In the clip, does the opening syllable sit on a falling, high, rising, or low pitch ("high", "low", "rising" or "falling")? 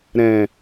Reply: low